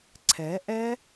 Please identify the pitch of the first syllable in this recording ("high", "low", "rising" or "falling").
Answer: rising